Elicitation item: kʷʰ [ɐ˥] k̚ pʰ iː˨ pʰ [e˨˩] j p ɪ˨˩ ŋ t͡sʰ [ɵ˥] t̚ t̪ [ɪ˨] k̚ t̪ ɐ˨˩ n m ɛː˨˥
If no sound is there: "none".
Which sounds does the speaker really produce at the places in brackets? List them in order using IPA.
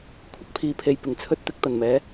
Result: ɐ˥, e˨, ɵ˥, ɪ˥

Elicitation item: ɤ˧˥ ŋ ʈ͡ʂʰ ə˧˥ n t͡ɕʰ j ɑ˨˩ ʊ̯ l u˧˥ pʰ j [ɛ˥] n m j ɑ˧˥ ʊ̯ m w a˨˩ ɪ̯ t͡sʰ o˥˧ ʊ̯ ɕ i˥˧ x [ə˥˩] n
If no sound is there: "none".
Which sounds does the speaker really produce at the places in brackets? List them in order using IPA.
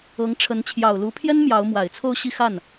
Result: ɛ˥, a˥˩

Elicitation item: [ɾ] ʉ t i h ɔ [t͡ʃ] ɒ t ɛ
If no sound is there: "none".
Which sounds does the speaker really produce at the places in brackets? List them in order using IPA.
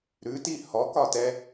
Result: ɾ, k

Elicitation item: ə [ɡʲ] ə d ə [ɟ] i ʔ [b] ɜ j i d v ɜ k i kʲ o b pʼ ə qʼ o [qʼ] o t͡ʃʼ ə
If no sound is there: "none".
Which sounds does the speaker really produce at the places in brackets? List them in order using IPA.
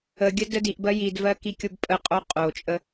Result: ɡʲ, d, b, qʼ

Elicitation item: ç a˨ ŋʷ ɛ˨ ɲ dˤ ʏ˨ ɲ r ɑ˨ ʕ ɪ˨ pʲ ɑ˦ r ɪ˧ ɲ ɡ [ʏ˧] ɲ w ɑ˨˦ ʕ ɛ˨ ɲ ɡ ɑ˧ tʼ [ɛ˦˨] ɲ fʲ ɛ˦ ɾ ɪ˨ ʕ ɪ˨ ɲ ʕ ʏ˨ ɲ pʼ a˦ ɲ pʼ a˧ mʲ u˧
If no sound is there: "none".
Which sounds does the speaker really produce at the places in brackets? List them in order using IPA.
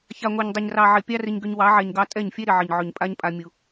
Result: ʏ˧, ɛ˦˨

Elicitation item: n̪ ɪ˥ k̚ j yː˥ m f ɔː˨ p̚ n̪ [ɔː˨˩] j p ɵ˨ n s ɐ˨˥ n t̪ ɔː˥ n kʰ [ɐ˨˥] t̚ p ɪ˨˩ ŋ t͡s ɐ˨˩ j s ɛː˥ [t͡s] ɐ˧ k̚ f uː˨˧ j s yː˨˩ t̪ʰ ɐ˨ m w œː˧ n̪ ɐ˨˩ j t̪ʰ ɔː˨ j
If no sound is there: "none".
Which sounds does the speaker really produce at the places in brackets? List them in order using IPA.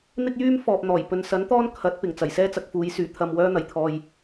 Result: ɔː˨˩, ɐ˨˥, t͡s

